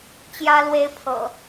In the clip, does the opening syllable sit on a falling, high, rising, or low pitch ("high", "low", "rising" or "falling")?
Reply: high